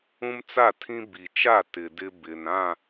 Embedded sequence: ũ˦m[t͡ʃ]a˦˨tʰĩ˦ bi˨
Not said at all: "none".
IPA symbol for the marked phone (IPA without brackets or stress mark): t͡s